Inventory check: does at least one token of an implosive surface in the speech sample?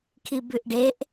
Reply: no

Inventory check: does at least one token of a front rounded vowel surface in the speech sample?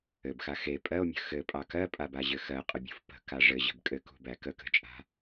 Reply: no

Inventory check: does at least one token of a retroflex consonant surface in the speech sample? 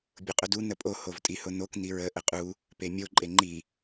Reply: no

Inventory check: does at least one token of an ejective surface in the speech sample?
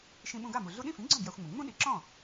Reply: no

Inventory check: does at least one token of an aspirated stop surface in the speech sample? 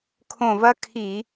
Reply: yes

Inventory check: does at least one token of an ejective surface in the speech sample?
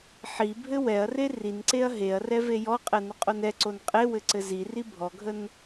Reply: yes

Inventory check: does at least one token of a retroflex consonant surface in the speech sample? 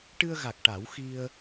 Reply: yes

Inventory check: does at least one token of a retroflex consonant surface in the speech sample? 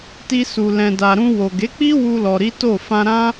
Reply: no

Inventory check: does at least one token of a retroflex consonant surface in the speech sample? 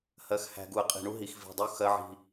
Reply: yes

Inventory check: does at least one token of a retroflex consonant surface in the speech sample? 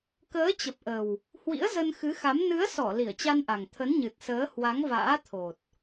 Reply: no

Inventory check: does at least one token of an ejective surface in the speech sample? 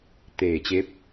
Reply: no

